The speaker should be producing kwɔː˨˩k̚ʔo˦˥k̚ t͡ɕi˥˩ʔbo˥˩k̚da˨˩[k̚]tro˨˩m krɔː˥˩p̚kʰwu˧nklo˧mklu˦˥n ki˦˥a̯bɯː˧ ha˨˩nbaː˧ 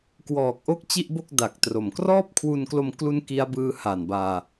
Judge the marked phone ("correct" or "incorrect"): correct